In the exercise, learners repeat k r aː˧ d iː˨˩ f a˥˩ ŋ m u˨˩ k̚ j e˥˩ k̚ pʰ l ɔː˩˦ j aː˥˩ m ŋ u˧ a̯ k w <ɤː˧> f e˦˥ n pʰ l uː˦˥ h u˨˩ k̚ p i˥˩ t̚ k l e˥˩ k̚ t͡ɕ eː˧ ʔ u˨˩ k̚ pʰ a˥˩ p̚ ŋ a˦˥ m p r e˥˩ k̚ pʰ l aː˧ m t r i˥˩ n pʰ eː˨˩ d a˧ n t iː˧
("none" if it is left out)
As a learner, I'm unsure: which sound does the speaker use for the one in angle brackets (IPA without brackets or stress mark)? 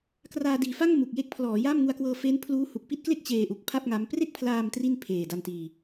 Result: ɤː˧